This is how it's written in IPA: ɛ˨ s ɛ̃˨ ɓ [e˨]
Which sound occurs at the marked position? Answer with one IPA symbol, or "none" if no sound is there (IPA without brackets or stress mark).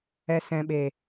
e˨